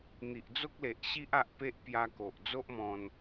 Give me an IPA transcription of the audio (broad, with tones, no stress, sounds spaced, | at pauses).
n̪ i˨ ʔ d͡z o˦ k̚ l e˨ ʔ ɕ i˦ ʔ a˦ ʔ p e˦ ʔ p j a˧ k o˨ ʔ d͡z o˦ ʔ m ɔ̃˧ n